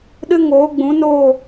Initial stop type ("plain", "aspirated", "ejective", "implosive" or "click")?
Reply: implosive